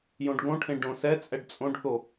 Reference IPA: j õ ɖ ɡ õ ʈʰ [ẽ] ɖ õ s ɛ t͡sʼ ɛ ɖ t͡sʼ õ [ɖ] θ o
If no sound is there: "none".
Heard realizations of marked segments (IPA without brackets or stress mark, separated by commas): ẽ, ɖ